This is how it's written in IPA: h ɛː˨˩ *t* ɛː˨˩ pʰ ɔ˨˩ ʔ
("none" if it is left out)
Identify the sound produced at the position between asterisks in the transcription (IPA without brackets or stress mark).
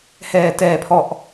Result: t